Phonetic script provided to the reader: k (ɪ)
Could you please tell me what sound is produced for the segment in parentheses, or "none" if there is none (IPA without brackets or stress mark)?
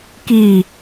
i